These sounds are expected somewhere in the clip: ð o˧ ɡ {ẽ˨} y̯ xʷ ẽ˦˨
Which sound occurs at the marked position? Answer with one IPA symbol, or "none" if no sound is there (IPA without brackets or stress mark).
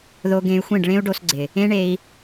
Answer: ẽ˧